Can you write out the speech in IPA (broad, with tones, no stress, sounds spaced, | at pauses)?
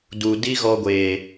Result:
d u˨ d i˦ ɣ ɔ˧ ɡʷ eː˨